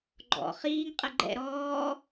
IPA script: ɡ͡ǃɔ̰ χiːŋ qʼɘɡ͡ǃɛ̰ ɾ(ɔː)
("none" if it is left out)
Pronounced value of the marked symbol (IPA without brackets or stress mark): ɔː